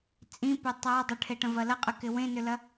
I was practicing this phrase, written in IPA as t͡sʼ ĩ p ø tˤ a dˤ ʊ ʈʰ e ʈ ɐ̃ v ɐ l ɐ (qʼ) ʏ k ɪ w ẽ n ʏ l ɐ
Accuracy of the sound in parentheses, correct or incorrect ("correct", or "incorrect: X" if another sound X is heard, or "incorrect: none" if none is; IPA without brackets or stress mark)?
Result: correct